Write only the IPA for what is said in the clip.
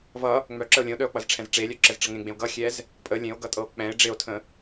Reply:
vʌ | ŋ͡mœǁəo̯ lʲə̃o̯ɗœo̯k͡pʌzʈ͡ʂʰɛ̃z ʈ͡ʂelʲœǁɛzʈ͡ʂʌ ŋẽɡ͡bẽo̯ ɡʌxʲɛz | pʼə lʲẽo̯ɡʌtʼɤo̯ k͡pɛ̃e̯ ɖ͡ʐeo̯tʰə̃

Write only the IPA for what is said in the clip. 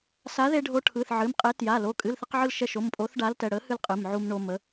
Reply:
sa˨˥ðe˧ɖʱo˨˥ʈʰɯ˩˧˩θ ʕɨ˩˧˩mqʼe˨˥ tja˩˧˩ lo˩˧˩kʼɨ˩˧˩lθə˧qʕɯ˧l ʃɛ˧ʃo˩˧˩mpʼo˨˥θ ɖa˨˥ltɛ˩˧˩ɽə˨˥hɨ˧l qʼɨ˩˧˩mʕu˧mɳo˧ mə˨˥

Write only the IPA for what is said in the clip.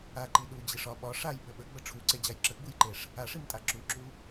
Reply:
aǃi ɗud͡ʑiʂ ɒ ɓɒ ʂajɓə ɓəɡ͡bə ʈ͡ʂʰuǀed͡ʑaj ǁəɡ͡bujǃeʂ | aʂimtʼa ǁuǁu

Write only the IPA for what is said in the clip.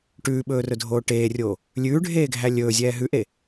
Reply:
ʈʉːɓɵːrɵdʱoː ʈeːrʲoː | lʲʉːɖʱeːɡʱæ lʲɵːzʲɛː ɦʉʔe

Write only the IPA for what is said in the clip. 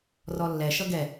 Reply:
rɔlːɛ ʃʌɡɛ

